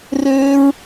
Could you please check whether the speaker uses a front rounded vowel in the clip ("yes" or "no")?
yes